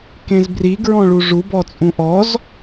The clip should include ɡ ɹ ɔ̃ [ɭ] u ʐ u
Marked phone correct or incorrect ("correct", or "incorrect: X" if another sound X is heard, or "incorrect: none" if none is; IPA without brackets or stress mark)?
correct